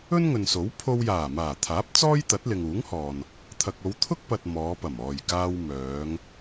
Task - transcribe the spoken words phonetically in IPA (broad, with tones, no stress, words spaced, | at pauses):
ɵ˥nŋɵ˨nso˨˥w pʰo˧wjaː˨˩ maː˨˩t̪ʰaː˨˥p̚ t͡sɔː˥j t̪ɐ˨˥t̚lɪ˨ŋuː˨˥ŋhɔː˨n | t̪ʰɐ˨k̚o˨˧w t̪ʰʊ˥k̚pɐ˨t̚ mɔː˨˧pɐ˨˩m ɔː˨˩jkaː˨w mœː˨˧ŋ